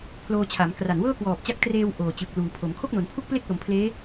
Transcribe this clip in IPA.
pʰ l oː˧ t͡ɕʰ a˩˦ m k r a˨˩ n w ɤː˥˩ k w ɔː˨˩ p̚ t͡ɕ a˦˥ k̚ t r eː˧ w ʔ oː˨˩ t͡ɕ ɯ˨˩ k̚ l uː˩˦ pʰ o˩˦ m kʰ o˥˩ k̚ n o˩˦ n pʰ u˥˩ k̚ p l e˥˩ k̚ l o˩˦ m pʰ l eː˦˥

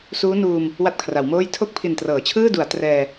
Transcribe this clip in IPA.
s uː˦˥ n uː˧ m | w a˥˩ t̚ kʰ r a˩˦ w m oː˥˩ j tʰ o˥˩ k̚ pʰ i˨˩ n t r ɤː˩˦ t͡ɕʰ ɯː˥˩ d u˩˦ a̯ t r ɛː˧

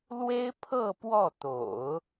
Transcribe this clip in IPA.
l w e˥ ɪ̯ pʰ ɤ˥˧ p w ɔ˥˩ t̪ o̰˨˩˦ ʊ̯

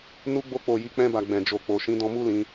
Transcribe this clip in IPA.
n u˧ ɡ͡b o˧ k͡p o˨ j i˨˦ k͡p ɛ̃˧ b a˨ ɡ͡b ɛ̃˨ d͡ʒ o˨ k͡p o˨ ʃ ĩ˨˦ d ɔ̃˧ m u˦ l ĩ˧

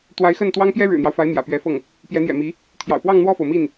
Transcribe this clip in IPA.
t̪ w a˧˥ ɪ̯ x ə˥˩ n t̪ w ɑ˥ ŋ p j ɛ˥ ɻ ɻ̩˨˩ n̪ j ɑ˦ ʊ̯ f a˧˥ ɪ̯ m j ä̰˨˩ p ɥ ɛ˧˥ f ɤ˥˩ ŋ | p j ɛ˧˥ n̪ j ɛ̰˨˩ m i˧˥ | t̪ʰ j ɑ̰˨˩ ʊ̯ p w ɑ˥˧ ŋ n̪ w ɔ˥˩ f o˩ ʊ̯ m i˥˩ n

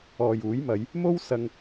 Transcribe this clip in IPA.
ɔː˨ j uː˨˥ j m ɐ˨˧ j | m o˥ w s ɐ˧ ŋ

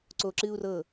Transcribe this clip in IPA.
ǀ o ǁ ɨ u̯ r ɤ

